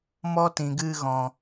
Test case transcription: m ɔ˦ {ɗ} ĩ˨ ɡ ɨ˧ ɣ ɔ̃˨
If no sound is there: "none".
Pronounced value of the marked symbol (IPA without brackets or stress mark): t